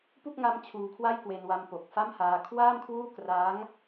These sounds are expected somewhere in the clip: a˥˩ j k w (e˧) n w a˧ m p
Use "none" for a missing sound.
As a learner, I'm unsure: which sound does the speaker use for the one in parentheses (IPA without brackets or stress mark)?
e˧